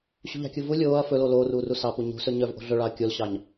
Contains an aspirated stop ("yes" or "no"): no